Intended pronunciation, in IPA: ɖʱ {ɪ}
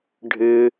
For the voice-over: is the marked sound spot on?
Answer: yes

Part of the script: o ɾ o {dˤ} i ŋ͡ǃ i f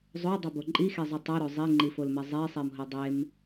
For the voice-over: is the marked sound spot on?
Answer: no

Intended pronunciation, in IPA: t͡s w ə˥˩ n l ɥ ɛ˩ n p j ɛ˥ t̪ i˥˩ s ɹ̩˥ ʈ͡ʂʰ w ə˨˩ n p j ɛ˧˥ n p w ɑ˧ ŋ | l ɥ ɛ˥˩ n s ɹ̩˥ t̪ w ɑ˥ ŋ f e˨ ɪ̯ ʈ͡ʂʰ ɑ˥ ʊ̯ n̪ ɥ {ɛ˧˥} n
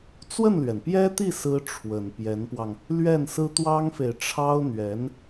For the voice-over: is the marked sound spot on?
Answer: yes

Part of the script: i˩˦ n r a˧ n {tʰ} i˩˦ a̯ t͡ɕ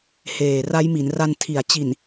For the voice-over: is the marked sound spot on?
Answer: yes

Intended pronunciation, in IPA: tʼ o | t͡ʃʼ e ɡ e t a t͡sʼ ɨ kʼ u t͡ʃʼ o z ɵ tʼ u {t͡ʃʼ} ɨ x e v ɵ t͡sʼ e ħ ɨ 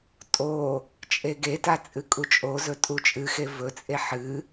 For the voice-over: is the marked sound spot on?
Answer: yes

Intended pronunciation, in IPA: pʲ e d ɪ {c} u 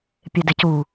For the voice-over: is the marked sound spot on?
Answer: yes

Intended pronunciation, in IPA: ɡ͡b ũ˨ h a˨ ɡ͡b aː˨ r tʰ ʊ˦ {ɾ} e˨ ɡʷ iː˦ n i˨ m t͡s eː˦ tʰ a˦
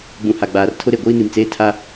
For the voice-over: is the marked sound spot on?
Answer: yes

